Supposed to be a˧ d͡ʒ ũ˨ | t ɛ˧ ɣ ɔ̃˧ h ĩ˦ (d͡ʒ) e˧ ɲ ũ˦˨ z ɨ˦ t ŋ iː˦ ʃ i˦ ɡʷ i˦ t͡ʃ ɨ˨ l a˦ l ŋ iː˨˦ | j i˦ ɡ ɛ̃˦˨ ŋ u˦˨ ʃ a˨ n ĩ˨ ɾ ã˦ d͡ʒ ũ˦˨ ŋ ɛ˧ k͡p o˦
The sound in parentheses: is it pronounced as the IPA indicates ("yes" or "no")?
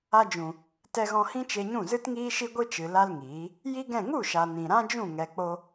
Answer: no